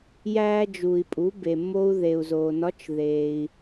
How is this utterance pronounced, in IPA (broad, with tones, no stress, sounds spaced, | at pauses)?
j æː˧ d͡ʒ uː˩ i̯ pʼ u˩˧ b e˩ mː o˧ u̯ ð e˩ u̯ z oː˩ n ɒ˧˥ t͡ʃ ð eː˩ i̯